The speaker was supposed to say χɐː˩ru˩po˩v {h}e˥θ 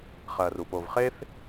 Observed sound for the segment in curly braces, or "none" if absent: χ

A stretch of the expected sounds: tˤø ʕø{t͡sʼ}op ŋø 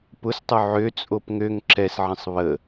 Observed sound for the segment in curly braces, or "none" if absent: t͡sʼ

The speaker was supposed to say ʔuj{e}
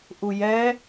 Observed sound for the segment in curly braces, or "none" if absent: ɛ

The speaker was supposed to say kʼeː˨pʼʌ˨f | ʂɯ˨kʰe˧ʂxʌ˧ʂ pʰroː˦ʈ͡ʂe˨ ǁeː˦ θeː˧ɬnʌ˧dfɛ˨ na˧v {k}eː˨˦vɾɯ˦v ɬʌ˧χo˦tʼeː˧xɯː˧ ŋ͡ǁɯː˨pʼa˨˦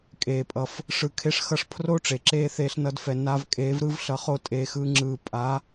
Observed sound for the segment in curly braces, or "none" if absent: kʼ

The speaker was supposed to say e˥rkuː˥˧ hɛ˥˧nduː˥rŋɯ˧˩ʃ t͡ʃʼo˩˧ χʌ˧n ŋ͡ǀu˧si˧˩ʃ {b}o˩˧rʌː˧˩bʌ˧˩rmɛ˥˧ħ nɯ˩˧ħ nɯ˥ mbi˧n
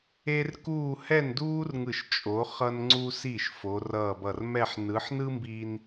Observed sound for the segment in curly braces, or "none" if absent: f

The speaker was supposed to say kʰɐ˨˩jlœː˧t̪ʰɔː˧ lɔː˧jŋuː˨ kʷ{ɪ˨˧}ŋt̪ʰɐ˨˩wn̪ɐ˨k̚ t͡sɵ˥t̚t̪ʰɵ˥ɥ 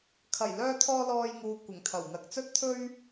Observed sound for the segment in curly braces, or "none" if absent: ɪ˨˩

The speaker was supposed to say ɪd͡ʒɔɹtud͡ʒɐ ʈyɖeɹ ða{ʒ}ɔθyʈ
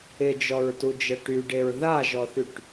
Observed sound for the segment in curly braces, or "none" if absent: ʒ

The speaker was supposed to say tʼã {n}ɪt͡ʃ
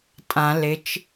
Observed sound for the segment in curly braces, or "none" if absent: l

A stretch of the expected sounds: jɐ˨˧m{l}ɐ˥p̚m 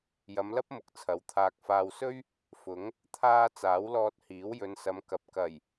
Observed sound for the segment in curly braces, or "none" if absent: l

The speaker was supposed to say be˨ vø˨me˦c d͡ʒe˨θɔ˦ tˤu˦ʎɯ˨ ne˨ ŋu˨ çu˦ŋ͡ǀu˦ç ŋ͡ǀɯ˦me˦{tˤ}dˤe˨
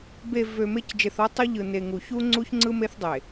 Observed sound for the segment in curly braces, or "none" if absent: θ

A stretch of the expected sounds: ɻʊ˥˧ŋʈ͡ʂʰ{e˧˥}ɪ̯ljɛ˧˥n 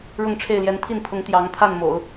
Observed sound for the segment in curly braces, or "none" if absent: e˥˩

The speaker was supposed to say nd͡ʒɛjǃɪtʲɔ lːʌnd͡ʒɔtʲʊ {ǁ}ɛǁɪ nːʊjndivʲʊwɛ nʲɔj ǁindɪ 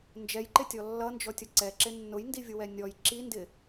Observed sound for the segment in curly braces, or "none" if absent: ǀ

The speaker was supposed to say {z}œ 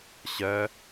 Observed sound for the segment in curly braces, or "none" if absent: ɕ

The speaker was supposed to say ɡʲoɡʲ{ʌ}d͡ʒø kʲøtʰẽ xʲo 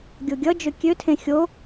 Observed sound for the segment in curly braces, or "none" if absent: ʌ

